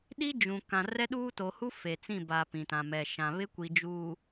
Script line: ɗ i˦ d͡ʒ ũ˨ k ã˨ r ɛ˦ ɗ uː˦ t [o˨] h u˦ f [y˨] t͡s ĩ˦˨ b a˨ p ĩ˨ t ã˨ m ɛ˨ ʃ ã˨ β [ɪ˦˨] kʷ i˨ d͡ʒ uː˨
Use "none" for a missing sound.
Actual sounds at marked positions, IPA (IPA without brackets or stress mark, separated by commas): o˨, e˨, ɪ˦